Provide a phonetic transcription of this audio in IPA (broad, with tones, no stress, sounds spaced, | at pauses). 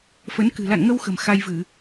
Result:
f ə˨˦ n k ɨ̤˨˩ l a̰˧˨ n ŋ ə˧ w x ə̤˨˩ m x a˧ j v ɨ˧˩˨